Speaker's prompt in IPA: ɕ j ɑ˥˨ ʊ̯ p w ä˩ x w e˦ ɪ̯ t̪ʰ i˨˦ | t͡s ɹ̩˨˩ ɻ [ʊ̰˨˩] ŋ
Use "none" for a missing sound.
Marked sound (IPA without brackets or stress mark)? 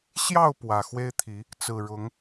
ʊ˨˦